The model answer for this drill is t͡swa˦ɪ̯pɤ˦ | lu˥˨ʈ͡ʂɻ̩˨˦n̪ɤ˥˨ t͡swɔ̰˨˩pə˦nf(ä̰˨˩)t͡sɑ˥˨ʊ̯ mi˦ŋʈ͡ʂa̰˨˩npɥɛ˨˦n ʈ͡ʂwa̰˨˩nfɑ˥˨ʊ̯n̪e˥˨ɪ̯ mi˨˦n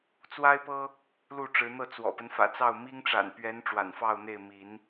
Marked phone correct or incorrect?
correct